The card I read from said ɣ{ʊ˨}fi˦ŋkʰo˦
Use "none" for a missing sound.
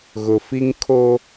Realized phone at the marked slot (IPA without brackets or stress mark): ʊ˨